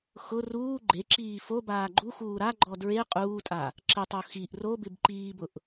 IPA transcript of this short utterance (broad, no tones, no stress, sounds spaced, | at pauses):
x ʊ r uː ɡ͡ǃ e ǁ iː f o b aː ɡ͡ǃ u x uː ɾ a ɡ͡ǃ ɔ d ɹ e qʼ uː tʼ a | ǁ ɪ tˤ o x i ʔ r o b ɪ b ǃ iː b ʊ ʔ